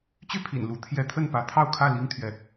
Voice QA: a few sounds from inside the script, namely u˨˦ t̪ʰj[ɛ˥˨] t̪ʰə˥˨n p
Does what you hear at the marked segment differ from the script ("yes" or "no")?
yes